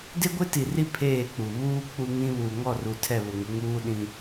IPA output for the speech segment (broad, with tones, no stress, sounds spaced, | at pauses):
d ɪ˦ ɡʷ ɪ˦ t i˨ r i˦ pʰ eː˦˨ k͡p u˨ β uː˦ k͡p u˦ ŋ ĩ˦ β uː˨ ŋ ɔ˦˨ r u˨ tʰ ɛ˦˨ β ʊ˨ ŋ ɪ˨˦ ŋ uː˦ ɗ ĩ˦